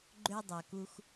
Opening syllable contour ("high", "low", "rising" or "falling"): high